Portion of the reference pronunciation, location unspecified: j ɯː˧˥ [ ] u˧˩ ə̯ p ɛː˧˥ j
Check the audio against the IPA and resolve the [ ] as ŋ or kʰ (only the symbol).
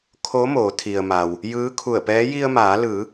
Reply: kʰ